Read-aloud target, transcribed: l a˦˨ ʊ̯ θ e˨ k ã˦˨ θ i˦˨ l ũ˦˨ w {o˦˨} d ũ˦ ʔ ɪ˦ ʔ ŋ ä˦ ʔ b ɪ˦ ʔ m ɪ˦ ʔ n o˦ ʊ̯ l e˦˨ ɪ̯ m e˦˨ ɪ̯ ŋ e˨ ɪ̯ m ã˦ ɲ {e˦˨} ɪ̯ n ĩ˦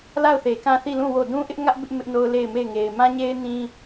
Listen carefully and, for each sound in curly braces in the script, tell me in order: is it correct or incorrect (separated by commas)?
correct, incorrect